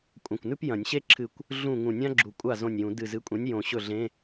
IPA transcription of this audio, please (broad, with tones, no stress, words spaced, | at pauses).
kʷʼɐ̃˧˩kʷnʉ˥p jɐ̃˨˩˦nʲɕe˥ǁʰɨ˧˩kʷ | ɮũ˥˩ ŋũ˧˩nʲã˥ɡ͡ǁu˨˩˦ kʷʼa˥˩ zõ˧˩nʲjũ˨˩˦ dɨ˧˩zɨ˨˥kʷʼẽ˨˥nʲ jõ˨˩˦ɕɵ˥˩ɮẽ˧˥˧